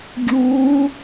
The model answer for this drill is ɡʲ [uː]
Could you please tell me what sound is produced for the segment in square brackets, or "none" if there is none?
uː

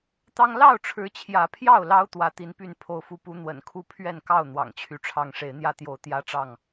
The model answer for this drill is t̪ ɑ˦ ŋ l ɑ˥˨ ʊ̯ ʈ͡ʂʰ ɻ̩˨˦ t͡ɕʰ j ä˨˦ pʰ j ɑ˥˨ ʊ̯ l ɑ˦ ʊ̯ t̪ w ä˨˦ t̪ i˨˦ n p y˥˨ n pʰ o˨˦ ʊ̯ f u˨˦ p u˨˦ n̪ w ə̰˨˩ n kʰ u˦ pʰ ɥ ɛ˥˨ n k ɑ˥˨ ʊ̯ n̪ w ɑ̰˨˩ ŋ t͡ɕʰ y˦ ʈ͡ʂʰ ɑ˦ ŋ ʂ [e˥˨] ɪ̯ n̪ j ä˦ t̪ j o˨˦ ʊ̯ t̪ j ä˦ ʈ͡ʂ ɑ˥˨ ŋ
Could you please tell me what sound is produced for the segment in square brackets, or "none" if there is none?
e˨˦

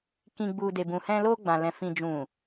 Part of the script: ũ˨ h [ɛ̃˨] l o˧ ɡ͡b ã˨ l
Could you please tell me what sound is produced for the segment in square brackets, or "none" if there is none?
ɛ̃˧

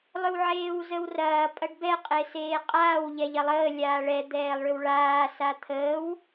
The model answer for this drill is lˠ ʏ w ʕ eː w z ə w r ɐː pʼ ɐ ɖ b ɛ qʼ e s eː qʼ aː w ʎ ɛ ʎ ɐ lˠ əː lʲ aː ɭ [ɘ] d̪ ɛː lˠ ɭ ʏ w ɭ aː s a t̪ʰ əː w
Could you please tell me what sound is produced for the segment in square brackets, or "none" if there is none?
ɛ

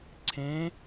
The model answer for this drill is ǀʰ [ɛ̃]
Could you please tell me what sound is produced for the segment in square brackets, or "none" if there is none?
ẽ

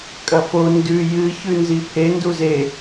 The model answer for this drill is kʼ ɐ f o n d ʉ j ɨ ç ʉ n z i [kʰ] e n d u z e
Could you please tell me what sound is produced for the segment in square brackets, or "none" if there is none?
pʰ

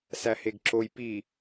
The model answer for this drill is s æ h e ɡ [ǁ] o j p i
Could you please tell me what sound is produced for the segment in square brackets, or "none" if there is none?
ǁ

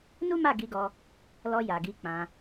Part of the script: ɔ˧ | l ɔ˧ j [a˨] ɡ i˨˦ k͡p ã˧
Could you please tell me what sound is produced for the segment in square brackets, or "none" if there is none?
a˨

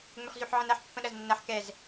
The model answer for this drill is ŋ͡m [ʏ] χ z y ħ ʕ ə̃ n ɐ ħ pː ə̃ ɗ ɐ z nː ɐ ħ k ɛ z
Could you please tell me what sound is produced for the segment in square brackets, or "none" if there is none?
ʏ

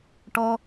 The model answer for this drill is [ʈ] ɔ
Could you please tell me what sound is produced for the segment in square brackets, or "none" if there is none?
ʈ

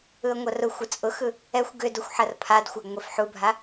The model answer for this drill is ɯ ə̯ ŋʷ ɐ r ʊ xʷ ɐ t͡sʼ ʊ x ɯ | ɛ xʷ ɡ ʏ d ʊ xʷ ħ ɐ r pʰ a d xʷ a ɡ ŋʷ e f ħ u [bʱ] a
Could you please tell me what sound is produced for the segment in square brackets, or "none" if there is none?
bʱ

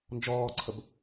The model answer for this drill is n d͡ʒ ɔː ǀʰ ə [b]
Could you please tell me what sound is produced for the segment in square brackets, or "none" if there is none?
b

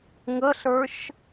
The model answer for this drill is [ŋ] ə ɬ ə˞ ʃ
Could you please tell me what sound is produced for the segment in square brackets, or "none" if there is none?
ŋ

